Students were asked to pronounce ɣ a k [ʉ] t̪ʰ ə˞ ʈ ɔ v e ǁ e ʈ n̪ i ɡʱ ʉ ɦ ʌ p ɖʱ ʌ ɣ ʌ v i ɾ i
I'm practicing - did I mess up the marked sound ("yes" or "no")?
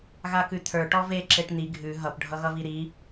no